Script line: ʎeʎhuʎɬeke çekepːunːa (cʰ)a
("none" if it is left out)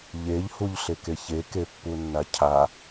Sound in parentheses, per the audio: cʰ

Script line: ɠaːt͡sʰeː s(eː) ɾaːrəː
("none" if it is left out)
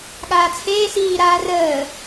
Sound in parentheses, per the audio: iː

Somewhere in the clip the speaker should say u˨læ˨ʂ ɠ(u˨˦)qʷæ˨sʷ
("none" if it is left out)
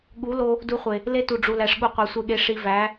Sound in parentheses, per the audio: u˨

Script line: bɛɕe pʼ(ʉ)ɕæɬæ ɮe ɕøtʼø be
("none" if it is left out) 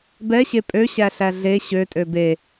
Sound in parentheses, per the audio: ø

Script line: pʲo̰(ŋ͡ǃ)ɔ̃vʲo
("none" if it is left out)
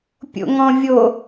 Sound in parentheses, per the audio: ŋ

